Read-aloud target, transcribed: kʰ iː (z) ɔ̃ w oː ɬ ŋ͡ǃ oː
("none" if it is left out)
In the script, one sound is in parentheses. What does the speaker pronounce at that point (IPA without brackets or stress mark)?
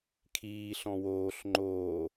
ɬ